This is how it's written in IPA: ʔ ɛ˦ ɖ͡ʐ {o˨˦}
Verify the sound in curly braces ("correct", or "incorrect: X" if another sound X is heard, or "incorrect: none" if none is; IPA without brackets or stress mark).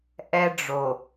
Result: incorrect: o˨